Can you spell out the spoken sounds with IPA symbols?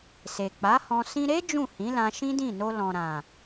s e˨ k͡p a˨˦ h ɔ̃˧ s ĩ˧ ɾ e˦ d͡ʒ ũ˦˨ h ĩ˨˦ l ã˧ ʃ ĩ˦ d ĩ˦˨ n o˧ l ɔ̃˨ ɾ ã˨

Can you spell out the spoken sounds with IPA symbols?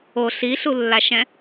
o ɬ i ɬ u lː a ʃ ɛ̃

